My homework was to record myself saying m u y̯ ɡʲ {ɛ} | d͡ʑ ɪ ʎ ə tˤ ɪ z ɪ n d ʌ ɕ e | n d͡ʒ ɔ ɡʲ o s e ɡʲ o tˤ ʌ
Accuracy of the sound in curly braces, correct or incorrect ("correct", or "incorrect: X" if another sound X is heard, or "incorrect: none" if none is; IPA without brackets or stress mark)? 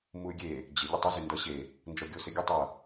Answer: incorrect: e